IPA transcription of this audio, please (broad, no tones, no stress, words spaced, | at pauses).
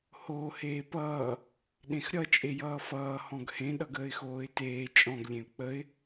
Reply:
hoːheːpʌː | ɗẽxɾʲʌ t͡ʃʼejʌːfʌː hɔ̃ɡhẽ ɗʌɡəːɪ̯xoːɪ̯teː t͡ʃʼɔ̃ɡ lʲẽʊ̯k͡pəɪ̯